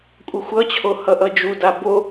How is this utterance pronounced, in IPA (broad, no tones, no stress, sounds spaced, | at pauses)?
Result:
kʷʼ ʌ xʷ ʌ t͡ɕʰ o h ʌ ʔ ʌ d͡ʒ u d a b o